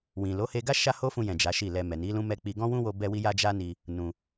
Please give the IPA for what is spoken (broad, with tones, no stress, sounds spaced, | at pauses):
w ĩ˨ l o˨˦ h e˧ ɡ a˦ ʃ a˦ h o˦ f ũ˧ j ɛ̃˨ d͡ʒ a˨˦ ʃ i˦˨ l ɛ˧ m ɛ˨ n i˨˦ l ũ˦ m ɛ˧ k͡p i˧ ɡ ɔ̃˦ w ũ˦ w o˧ b ɛ˦ w i˦ j a˦ d͡ʒ a˦ n i˧ | n ũ˧